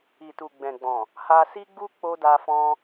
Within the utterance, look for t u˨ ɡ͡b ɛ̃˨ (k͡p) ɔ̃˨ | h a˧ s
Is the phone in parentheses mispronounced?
yes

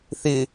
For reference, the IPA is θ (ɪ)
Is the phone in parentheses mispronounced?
no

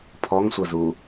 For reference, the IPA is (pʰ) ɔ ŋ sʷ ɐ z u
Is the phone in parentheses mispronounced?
no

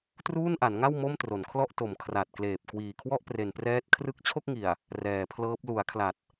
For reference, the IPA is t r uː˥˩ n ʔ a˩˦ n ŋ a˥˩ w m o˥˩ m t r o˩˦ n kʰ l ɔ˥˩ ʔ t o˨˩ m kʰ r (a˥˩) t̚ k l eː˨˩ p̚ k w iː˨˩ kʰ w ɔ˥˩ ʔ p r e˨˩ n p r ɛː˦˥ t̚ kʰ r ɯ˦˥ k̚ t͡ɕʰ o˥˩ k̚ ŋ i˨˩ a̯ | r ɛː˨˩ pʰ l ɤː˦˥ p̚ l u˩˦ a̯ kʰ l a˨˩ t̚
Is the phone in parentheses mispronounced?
yes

